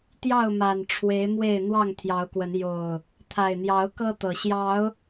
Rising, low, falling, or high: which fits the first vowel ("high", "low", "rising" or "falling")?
falling